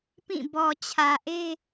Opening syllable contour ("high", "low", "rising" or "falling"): falling